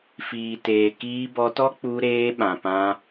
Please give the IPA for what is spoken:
f iː˨ t eː˨ k iː˧ b ɔ˧ t ɔ˦ k͡p u˧ ɾ eː˧ ɓ ã˨ p ã˧

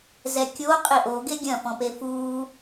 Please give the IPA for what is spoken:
z ɛ kʲ o qʼ i ʔ o ɡ e ɡʲ ɐ̃ f ɔ̃ p e f uː

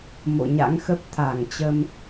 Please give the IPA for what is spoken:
m o̰˧˨ ɲ a̰˧˥ ŋ x ə˦˥ p̚ t̪ʰ a˧˩ ŋ t͡ɕ ə˧ m

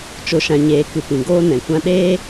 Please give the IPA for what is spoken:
t͡ʃ o˨ ʃ ã˨ ɲ eː˨ k ɨ˨ p ĩ˨ ɡ oː˦ n ɛ̃˨ kʷ ã˧ ɗ eː˦

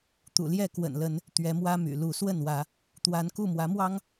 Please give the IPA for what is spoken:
t̪ ṵ˨˩ l j ɛ˥˨ k w ə̰˨˩ n l ə˨˦ n | t̪ ɥ ɛ˨˦ m w ä˦ m y̰˨˩ l u˨˦ s w ə˥˨ n w ä˨˦ | t̪ w a˨˦ n k u˥˨ m w ä˨˦ m w ɑ˦ ŋ

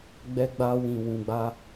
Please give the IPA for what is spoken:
ɡ͡b ɛ˧ ɡ͡b a˧ w ĩ˨ w ũ˨ ɡ͡b a˧

